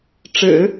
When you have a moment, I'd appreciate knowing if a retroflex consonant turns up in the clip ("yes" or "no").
yes